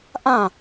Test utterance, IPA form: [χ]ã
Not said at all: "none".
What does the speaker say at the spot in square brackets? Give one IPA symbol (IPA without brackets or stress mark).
ʔ